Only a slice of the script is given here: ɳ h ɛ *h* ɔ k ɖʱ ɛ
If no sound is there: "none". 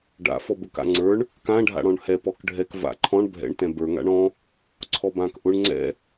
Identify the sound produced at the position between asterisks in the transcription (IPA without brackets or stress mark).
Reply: p